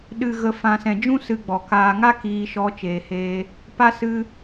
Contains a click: no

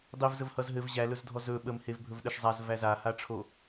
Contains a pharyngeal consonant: no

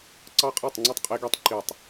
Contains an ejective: yes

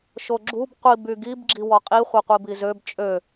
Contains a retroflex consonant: no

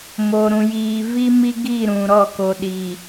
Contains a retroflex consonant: no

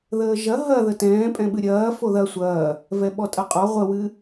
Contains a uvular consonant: yes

